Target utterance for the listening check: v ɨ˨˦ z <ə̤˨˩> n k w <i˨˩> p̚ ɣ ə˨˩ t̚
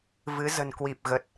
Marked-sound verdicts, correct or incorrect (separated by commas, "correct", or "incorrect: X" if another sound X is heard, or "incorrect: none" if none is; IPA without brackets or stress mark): correct, correct